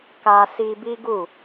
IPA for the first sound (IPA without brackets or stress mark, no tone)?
k